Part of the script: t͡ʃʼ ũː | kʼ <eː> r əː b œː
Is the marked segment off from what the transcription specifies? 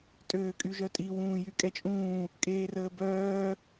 no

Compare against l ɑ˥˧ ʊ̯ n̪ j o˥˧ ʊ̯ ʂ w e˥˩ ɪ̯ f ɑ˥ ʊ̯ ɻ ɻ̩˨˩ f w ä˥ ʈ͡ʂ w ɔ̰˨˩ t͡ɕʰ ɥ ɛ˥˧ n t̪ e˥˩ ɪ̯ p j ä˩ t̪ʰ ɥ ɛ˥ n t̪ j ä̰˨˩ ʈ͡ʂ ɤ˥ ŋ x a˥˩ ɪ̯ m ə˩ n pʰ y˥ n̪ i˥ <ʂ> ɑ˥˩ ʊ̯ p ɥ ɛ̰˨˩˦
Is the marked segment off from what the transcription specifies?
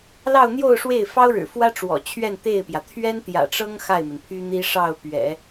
no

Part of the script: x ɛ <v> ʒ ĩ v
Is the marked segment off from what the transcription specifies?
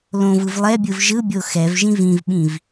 no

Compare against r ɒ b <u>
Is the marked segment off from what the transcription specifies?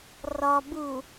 no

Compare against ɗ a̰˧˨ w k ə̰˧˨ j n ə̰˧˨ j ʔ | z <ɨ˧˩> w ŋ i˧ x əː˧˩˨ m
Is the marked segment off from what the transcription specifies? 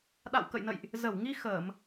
yes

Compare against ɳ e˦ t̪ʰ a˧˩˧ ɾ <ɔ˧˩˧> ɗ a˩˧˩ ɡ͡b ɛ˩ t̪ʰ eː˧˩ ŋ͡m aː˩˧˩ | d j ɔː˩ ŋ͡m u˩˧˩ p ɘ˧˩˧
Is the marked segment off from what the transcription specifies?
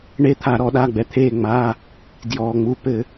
no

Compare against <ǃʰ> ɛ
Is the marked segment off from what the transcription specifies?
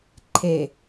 no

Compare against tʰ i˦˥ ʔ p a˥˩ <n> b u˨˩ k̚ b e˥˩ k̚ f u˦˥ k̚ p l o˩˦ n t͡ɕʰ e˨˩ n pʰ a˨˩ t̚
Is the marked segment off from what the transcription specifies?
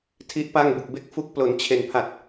yes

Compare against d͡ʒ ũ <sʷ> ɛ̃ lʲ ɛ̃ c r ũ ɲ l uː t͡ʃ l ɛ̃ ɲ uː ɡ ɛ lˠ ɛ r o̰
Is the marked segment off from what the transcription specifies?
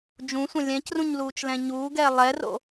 no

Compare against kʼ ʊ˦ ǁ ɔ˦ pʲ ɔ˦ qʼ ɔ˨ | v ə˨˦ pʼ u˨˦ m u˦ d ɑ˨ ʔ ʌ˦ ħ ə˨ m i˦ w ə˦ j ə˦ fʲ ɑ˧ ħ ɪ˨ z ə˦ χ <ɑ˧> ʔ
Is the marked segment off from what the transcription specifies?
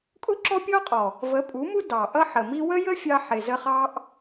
yes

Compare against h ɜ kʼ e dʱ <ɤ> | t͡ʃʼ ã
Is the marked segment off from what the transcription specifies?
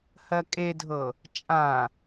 no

